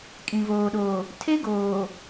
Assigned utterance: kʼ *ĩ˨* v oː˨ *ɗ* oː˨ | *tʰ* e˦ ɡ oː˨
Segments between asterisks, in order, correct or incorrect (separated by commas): correct, correct, correct